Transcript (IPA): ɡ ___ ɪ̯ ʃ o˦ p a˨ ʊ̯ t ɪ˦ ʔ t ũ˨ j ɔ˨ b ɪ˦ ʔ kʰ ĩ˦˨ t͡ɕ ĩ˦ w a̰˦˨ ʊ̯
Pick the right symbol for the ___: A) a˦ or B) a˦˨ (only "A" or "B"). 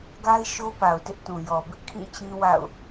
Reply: A